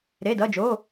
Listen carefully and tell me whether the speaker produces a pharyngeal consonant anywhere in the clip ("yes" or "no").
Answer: no